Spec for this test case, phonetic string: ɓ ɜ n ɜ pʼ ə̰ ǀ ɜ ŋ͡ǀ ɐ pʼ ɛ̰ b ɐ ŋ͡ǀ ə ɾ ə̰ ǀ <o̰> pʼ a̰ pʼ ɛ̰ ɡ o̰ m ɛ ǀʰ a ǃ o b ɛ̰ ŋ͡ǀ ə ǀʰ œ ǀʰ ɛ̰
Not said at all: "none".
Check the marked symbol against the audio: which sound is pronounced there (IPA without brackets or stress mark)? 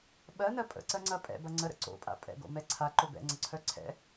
o̰